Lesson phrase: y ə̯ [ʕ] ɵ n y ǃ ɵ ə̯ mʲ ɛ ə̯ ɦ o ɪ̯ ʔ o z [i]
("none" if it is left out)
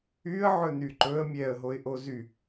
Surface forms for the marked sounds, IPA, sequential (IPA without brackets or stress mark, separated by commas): ʕ, y